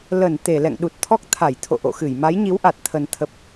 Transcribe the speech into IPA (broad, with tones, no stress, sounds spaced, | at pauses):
l ə˧˩ n t̪ e˧˩ l ɛ̰˧˨ ŋ ɗ u˨˩ t̚ t̪ʰ ɔ˦˥ k̚ t̪ʰ a˧˩ j t̪ʰ o̰˧˨ ʔ o̰˧˨ x ɨ˧˩ j m a˨˦ j ɲ i˨˦ w ʔ a˨˩ t̚ t̪ʰ ə˨˩ n t̪ʰ ə˨˩ p̚